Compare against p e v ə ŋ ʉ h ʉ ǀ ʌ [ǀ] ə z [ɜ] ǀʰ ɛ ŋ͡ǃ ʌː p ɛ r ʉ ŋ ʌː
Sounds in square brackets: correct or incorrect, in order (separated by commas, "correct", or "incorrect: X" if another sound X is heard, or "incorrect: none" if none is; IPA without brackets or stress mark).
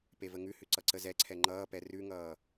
correct, incorrect: ɛ